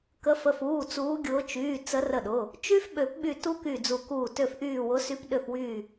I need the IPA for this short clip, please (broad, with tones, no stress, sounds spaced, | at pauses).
k ə˨˦ f ə˩˧˩ f uː˩˧˩ t͡s uː˨˦ ɡʲ ʊː˨˦ t͡ʃ yː˩˧˩ t͡s ə˨˦ r ə˧˩ ɗ ʊ˩˧˩ | t͡ʃ y˦˥ f ɓ ø˨˩˦ p ɓ y˧˩ t u˦˥ k y˧˩ d͡z u˨˩˦ k uː˧˩ t ø˧˩ f ʔ yː˧˩ w ʊ˨˦ s y˨˦ p ɗ ø˧˩ f w yː˧˩